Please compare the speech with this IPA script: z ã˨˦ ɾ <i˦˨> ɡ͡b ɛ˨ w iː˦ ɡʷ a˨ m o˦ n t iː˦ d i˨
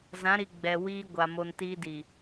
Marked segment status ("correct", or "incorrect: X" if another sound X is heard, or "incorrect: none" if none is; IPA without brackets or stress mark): incorrect: i˨